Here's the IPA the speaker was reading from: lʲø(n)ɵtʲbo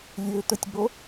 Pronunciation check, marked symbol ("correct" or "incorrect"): incorrect